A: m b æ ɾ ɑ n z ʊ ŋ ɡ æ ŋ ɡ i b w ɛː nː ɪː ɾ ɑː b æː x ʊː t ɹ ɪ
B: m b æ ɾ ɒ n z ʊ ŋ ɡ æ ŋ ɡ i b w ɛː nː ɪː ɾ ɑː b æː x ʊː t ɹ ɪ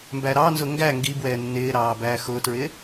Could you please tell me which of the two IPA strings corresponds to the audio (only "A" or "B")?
A